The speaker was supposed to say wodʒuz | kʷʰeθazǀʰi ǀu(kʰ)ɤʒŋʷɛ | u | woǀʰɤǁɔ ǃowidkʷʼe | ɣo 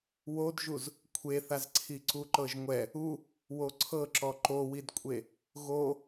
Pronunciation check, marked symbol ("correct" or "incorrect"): incorrect